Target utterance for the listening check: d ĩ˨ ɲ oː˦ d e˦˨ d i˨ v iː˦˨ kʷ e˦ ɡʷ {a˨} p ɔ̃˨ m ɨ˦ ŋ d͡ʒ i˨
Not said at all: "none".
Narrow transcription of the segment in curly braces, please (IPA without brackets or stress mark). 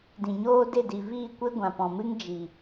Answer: ã˨